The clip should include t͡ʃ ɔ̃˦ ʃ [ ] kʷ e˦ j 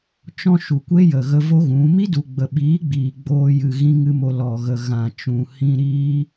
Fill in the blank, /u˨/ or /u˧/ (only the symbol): u˨